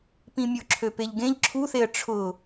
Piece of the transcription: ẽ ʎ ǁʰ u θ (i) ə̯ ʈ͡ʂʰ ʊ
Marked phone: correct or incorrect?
incorrect